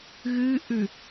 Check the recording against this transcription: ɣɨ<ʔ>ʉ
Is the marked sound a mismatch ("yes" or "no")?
no